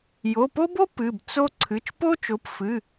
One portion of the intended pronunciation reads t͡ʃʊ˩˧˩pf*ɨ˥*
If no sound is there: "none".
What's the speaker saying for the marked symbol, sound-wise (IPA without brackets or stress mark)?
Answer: ɨ˩˧˩